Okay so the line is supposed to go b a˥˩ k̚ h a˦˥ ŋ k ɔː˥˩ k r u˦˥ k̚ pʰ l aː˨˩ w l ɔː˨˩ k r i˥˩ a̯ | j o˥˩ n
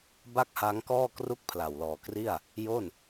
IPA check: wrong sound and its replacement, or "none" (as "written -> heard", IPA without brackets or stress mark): aː˨˩ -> a˨˩